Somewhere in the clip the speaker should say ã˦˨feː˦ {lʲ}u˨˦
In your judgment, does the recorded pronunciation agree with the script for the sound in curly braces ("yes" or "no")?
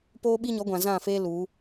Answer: no